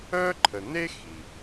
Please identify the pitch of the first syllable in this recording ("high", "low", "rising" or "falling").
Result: high